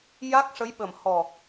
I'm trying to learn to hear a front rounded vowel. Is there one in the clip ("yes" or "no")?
no